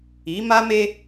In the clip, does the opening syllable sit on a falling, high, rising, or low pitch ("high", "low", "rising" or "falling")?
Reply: rising